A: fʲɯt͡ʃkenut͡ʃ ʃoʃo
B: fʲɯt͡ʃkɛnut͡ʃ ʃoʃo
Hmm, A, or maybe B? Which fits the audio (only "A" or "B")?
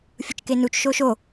A